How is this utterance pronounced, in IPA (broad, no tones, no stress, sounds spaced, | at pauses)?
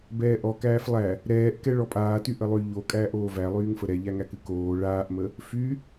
b ɛː ʔ ɔ k æː f lˠ æ | ɾ ɛː ʔ k ɛ ɭ ɔ pʼ aː t y ʔ ə lˠ y ʎ o kʼ æː ʔ oː v æ lˠ yː ŋ f ə ɾ ɛ ʎ æ ŋ æ k ɨ k oː ɭ aː ʔ m ə | f y